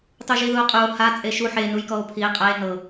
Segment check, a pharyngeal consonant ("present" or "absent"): present